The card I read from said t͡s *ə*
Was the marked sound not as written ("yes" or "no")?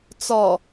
yes